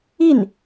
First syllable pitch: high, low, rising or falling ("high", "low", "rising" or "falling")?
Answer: falling